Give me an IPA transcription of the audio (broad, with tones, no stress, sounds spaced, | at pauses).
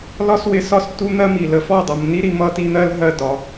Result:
l ɒ˦ s w ɪ˧ s ɒ˦˨ s t u˦ n̪ ɜ˦ m i˨ l ə˧ f ɔ˦˨ dˤ ʌ˨ m n i˦ ɾ i˧ m ʌ˦ t i˦ n̪ ɜ˦ l ɦ ɜ˦ d ɒ˨˦